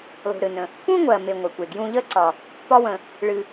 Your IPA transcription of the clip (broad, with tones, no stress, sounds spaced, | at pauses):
lˠ ṳ˩ ɾ ɨ˩ n ə̃˩ | p ũ˥ ŋʷ ɜ˩ m e˩ ŋʷ ə˩ kʷ e˩ ɡ j ũ˧ ʎ ə˥ ǀ ɒ˩ | p ɒ˧ w ə̃˩ | ɭ ɨ˩